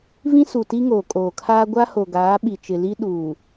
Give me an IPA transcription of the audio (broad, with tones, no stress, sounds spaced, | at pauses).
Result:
v ĩ˦ s u˨ t i˦ ŋ oː˨ kʼ oː˨ kʰ aː˦ ɡʷ a˦ h o˨ ɡ aː˨˦ ɓ i˨ t͡ʃ ɪ˨ l i˦ ɗ uː˨